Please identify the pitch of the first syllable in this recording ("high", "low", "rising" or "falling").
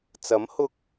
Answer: rising